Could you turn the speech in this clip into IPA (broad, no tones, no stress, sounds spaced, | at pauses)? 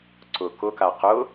ǀ ʊ k ʊ k a q ʊ